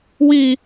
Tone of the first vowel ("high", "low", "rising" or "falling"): high